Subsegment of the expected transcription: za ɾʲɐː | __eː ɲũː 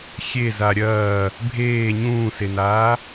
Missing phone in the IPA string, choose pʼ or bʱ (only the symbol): bʱ